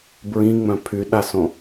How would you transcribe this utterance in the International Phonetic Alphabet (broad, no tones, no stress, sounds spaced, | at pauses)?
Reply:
b ɹ ĩ ŋ͡m œ̃ pʰ y ɗ a s õ